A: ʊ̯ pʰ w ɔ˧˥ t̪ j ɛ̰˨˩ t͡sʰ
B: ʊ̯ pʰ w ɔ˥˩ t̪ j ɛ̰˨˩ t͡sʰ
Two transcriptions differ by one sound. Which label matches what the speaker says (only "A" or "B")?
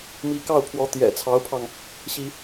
A